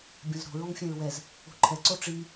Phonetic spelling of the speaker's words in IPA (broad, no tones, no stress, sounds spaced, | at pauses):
bʲ ɔ̃ z ɾ o̤ ɹ ɔ̃ ŋ fʲ ɛ̃ ɹ w ɛ z | o̤ ǃʰ ɛ ǀ o ʈ͡ʂ i